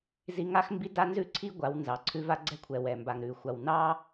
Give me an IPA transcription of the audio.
z i˦ ŋ a˦ x m b i˦ d a˦ n z ʉ˦ ǀʰ i˦ ɡʷ a˨˦ w n z ɑ˨ ǀʰ ʉ˦ v a˦ ɡ͡ǀ ɛ˦ kʷʰ ɛ˨ w ɛ˨ m b a˨ ŋ ɾ ʉ˨ xʷ a˨ w n ɑ˦

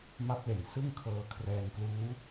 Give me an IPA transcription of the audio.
m a˦˥ p̚ l e˨˩ n s ɯ˥˩ ŋ kʰ ɤː˧ kʰ r ɛː˧ n k l uː˦˥

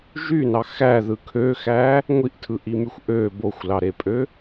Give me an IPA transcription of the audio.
ʒ y n ɑ x æ ð ɯ kʰ ø x æ | ŋʷ i ʔ tʰ ɯ ʔ i m y xʷ ʔ ø b o xʷ l ɑ ɾ e pʼ ø

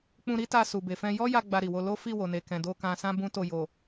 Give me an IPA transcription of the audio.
k͡p ũ˧ ɾ i˦ t a˧ s u˨ b e˨ f ɛ̃˧ j ɔ˦ j a˧ ɡ͡b a˧ ɾ i˨ w o˧ l o˦ f i˦˨ w o˨ n e˨ k ɛ̃˨ d o˧ k ã˧ s ã˦ b ũ˦ t o˦˨ j o˨

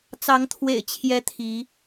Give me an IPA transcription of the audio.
t͡s ɑ˨˦ ŋ t̪ʰ w ḛ˨˩ ɪ̯ t͡ɕʰ j ɛ˦ t̪ʰ i˨˦

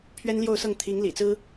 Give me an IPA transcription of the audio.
pʰ ɥ ɛ˥ n l j o˥˧ ʊ̯ s ɤ˥˩ ŋ t̪ʰ i˧˥ ŋ l ḭ˨˩ t͡s ɹ̩˥

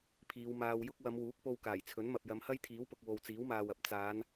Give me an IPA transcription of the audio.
pʰ iː˨˧ w m aː˧ w j ʊ˥ k̚ w ɐ˨˧ m w uː˨˥ k̚ p o˧ w k aː˨˩ j t͡sʰ ɵ˨˥ n m ɐ˨ p̚ j ɐ˨˧ m h ɐ˥ j t̪ʰ iː˨˥ w p ʊ˨ k̚ w o˨ w t͡s iː˨˥ w m aː˨ w ɐ˨ p̚ t͡s aː˨˧ n

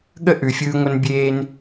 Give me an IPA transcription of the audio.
ɠ ə˥ ʔ ʉ˩ fʲ ɯː˧ ŋʷ ə˧ n bʲ eː˧ n

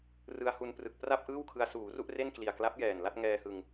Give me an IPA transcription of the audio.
r ɯ˧ a̯ h u˧ n p r ɯ˨˩ k̚ p r a˥˩ p̚ ʔ ɯː˥˩ w kʰ ɯ˧ a̯ s uː˩˦ r u˥˩ ʔ r e˥˩ n k l i˨˩ a̯ k l a˦˥ p̚ j ɛː˨˩ n l a˥˩ t̚ ŋ ɛː˧ h ɯ˧ ŋ

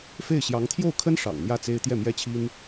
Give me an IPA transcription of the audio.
f e˥˩ ɪ̯ ɕ j ɑ˧˥ ŋ t̪ʰ j o˥˩ ʊ̯ kʰ ə˥ n ʂ ɑ̰˨˩ ŋ n̪ j ä˥˩ t͡s e˥ ɪ̯ t̪ j ɛ˥˩ m j ɛ˥ t͡ɕʰ i˥ n

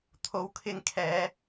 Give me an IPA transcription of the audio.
t̪ʰ o˨˥ w kʰ ɪ˧ ŋ kʰ ɛː˨˧

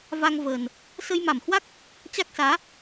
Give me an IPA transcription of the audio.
v a˧ ŋ v əː˨˩ n | s ə˧ j m a˧˩ m h w a˦˥ k̚ | t͡ɕ a˦˥ k̚ s aː˨˦

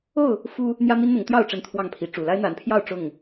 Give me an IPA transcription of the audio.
o˥˨ ʊ̯ | f u˦ | n̪ j ä˦ m i˦ n n̪ ʊ˨˦ ŋ t̪ j ɑ˥˨ ʊ̯ ʈ͡ʂ ə˦ n t̪ʰ w ɑ˥˨ ŋ pʰ i˨˦ ʈ͡ʂ u˨˩ l a˦ ɪ̯ n̪ a˨˦ n pʰ j ɑ˥˨ ʊ̯ ʈ͡ʂ ʊ˥˨ ŋ

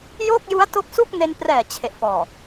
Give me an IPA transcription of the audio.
j o˥˩ k̚ j u˦˥ a̯ t o˦˥ k̚ s u˥˩ k̚ n e˧ n p r ɛː˨˩ t͡ɕʰ e˨˩ ʔ f ɔː˨˩

